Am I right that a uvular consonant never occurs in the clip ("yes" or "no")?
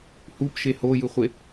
no